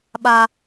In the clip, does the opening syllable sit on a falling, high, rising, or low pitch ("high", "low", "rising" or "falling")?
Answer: high